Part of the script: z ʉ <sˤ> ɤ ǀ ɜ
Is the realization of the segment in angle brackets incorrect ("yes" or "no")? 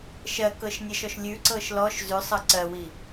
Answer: no